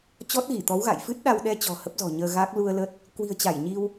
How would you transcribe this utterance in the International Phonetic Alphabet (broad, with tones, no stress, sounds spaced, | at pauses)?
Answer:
t͡ɕ ɔ˦˥ t̚ ɣ i˧˩ t̪ ɔ˨˦ w ɣ a̰˧˨ j f ɨ˦˥ t̚ ɗ a˧ w ɗ ɛ˧ t͡ɕ ɔ̤˨˩ h ə˦˥ p̚ z ɔ̤˨˩ ɲ əː˧ ɣ a˦˥ k̚ l u˧ ə̯ l ə˦˥ t̚ | k w i̤˨˩ ə̯ t͡ɕ a˧˩ j ɲ i˧ w